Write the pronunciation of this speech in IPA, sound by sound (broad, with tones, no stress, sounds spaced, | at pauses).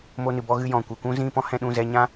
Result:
m o˧ n ɨ˨ b ɔ˧ ɣ ɨ˧ j ɔ̃˨ kʷ ɨ˨ kʷ ũ˦ z ĩ˦˨ p ɔ̃˦ h ɛ̃˧ ɗ ũ˦˨ z ɛ˧ ɲ ã˦